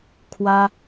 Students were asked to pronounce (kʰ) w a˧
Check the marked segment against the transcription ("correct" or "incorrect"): correct